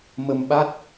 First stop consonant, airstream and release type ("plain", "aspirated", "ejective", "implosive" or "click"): implosive